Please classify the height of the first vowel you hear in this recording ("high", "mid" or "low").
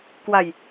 low